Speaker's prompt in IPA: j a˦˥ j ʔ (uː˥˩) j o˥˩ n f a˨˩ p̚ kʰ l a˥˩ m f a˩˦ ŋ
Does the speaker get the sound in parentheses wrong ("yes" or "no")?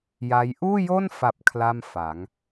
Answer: no